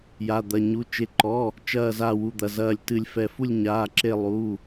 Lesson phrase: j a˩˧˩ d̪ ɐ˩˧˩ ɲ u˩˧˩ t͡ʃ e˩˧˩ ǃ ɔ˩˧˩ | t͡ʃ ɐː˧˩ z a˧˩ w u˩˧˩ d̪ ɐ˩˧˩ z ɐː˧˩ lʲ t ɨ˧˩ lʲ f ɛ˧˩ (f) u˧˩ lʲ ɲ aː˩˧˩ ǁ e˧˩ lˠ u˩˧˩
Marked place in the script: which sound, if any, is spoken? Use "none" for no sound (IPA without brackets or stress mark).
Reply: f